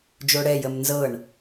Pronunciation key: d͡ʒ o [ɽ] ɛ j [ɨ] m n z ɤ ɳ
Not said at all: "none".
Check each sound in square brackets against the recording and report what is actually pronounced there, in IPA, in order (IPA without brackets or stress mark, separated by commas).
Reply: ɽ, ə